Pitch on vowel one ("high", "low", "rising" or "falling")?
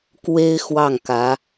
high